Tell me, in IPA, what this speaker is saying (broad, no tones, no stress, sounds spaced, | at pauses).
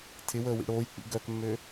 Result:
tʰ ɪ w əː w ḭ ɽ oː j k͡p ḭ ɡ œ k mː ø